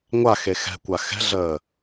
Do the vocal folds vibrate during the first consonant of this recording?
yes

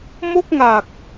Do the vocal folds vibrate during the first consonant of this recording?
yes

